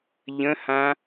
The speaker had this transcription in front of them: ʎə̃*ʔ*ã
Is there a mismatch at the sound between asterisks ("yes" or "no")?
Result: yes